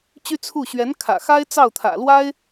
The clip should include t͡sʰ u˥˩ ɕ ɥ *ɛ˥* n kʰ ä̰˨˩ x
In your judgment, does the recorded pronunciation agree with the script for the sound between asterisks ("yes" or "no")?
no